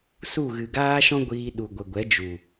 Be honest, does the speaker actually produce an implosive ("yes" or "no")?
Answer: yes